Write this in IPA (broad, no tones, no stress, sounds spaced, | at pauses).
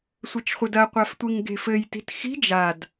sʷ ɘ t͡ʃ χʷ ɘ d ɐ qʷ a f tʷ i ŋ ɡ e̤ f ɘ j t i̤ t x i̤ d͡ʒ a d